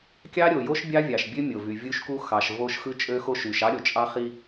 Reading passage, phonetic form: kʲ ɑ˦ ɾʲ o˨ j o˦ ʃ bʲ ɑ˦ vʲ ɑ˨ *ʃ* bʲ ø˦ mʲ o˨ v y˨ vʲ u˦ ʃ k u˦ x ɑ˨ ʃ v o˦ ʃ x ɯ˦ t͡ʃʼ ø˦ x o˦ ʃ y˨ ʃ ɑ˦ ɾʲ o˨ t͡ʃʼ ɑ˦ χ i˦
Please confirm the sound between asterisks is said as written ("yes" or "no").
yes